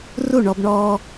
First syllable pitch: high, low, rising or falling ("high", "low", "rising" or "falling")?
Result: falling